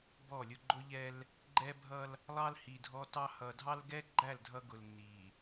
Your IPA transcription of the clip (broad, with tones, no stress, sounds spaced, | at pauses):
b ɔ˦˨ lʲ ʊ˦ ɡ͡ǃ ʊ˦ ʎ ɛ˦ l | ɡ͡ǃ ɛ˦ bʱ ʌ˦ l | lˠ ɑ˦ l h i˨ dʱ ɔ˦ t ɑ˦ h ʌ˨ dʱ ɑ˦ l ɡ ɛ˦ ɡ͡ǃ æ˦˨ l dʱ ʌ˦ ɡ ʊ˨ l n i˨